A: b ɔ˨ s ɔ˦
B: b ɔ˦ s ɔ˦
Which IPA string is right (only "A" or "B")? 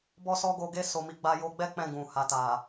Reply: B